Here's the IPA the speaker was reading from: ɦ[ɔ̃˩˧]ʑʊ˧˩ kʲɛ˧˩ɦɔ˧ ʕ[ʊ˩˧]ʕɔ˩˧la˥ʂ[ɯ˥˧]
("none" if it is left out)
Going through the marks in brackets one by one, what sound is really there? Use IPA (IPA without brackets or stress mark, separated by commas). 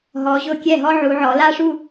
ɔ˩˧, u˩˧, u˥˧